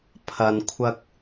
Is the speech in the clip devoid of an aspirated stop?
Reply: no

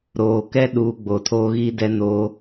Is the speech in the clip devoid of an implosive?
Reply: no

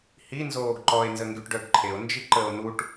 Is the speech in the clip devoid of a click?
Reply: no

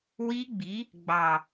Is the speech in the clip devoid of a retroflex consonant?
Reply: yes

